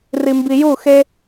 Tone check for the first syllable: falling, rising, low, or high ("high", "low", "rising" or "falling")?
low